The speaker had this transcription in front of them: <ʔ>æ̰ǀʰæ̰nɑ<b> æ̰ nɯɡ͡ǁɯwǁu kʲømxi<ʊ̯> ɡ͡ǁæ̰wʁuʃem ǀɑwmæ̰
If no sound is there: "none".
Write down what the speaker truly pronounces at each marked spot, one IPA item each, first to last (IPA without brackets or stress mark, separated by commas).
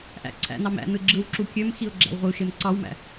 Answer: ʔ, m, ʊ̯